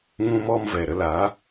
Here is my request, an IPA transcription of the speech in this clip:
ŋ ũ˦ m ɔ˦ m v ɛ˨ ɾ ə˧ l aː˨˦

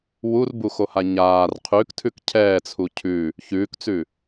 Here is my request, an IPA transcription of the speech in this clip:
w u r b u x o h a ɲ aː r qʰ ʉ k tʰ ʉ k cʰ ɛː t͡sʰ u cʰ ʉ | ç ʉː k t͡s ʉ

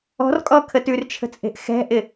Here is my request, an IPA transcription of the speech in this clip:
ɔ̤ r kʼ ɔ kʰ ə t ʉ r t͡ʃʰ ə̤ t͡sʼ e̤ ʔ x ɛ̤ ʔ ɪ

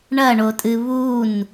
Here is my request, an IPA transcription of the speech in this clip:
ɳ ɐ ɳ o tʼ ɨ β u n

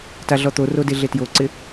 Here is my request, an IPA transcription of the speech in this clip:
t a ɮ ɔ t̪ o r o d e ɮ e t j o ǀ ɪ

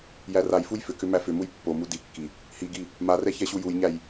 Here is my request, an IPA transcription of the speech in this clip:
j æ r a j f u j f ʏ k ʏ m æ f ʏ m u j pː o m u d i kː i | h i ɡ i | m a r ɛ ç ɛ ɕ u j u j ɲ æ j

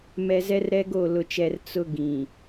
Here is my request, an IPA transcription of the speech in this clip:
m ɛ˨ z ɛ˦ r ɾ ɛ˦ ɡ o˦˨ l ʊ˨ t͡ʃ ɛ˨ r t͡s ʊ˦ ɡ ĩ˨

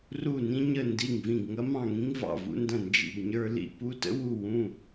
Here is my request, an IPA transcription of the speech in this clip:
r u˧˩ n ĩ˧ ɲ ə˧˩ n d i˧˩ ŋ v ĩ˧˩ ɡ ŋ ɐ˧ m ɑ̃˧˩ ŋ ĩ˧ ŋ v ɑ̰˧˩ v ṵ˧ n d ɐ̃˧˩ n d͡ʒ ḭ˧˩ ɡ ɲ ə˞˧ l ḭ˧˩ p u˧ t ə̰˧ w u˧˩ w ũ˧˩

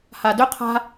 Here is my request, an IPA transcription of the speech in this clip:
h a d ɵ qʰ a̤

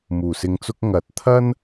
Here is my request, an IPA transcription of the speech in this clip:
m uː˨˩ s ɪ˧ ŋ t͡s ʊ˥ k̚ ŋ ɐ˨˥ t̚ t̪ʰ ɐ˥ n

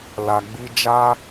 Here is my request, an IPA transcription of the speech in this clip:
l a˧ ɡ͡b i˦ d͡ʒ a˧

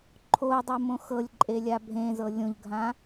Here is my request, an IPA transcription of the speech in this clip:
ǃʰ o dˤ ɤ m õ x ɤ lʲ ǃʼ e lʲ a bʱ ẽ z ɤ lʲ õ ʎ ɡʱ ã

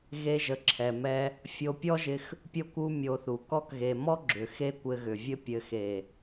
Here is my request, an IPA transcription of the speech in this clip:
ɣ e˧ ʒ ə˨ ǁʰ ɛ˨ m ɛ˧ | fʲ o˧ pʲ ɔ˦ ʒ ɪ˧ x | pʲ o˦ kʷ u˦ mʲ o˧ θ u˨ k ɔ˧ k ɣ e˨ m ɔ˦ ɡ͡ǁ ʏ˨ x e˦ kʷ ɘ˧ ɣ ʏ˨ vʲ ɘ˦ pʲ ɘ˨ x e˨

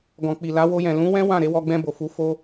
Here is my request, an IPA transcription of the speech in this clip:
ɡ ɔ̃˨ k͡p i˨ l a˨˦ w o˧ j ɛ̃˨ l ũ˨˦ w ɛ̃˦ w ã˦˨ ɾ e˨˦ w ɔ˧ ɡ͡b ɛ̃˧ b o˨ f u˨˦ f o˦

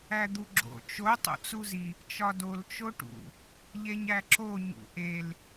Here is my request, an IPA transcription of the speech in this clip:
æ d̪ u ɡ͡ǁ o̰ t͡ʃ o tˤ o̰ t͡s u z i | t͡ʃ ɒ d o l t͡ʃ o ʈ ṵ | ʎ e ɲ æ ǁ o ɲ ṵ ʔ e l

